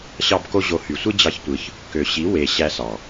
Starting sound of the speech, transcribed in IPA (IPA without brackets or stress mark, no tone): ɕ